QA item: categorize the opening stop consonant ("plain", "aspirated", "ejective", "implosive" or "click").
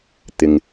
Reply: plain